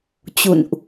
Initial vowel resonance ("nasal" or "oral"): oral